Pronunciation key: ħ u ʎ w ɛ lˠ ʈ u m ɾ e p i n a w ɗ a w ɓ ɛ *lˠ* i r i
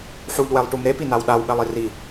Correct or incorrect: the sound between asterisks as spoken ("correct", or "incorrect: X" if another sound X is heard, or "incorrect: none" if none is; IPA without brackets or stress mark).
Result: correct